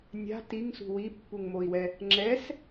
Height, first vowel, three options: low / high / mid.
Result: low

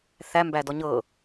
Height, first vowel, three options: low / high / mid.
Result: low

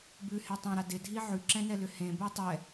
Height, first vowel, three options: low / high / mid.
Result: high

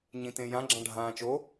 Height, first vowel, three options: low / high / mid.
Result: high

